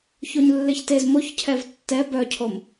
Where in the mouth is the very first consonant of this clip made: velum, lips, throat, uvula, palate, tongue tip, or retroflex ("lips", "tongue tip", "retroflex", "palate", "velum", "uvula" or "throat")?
palate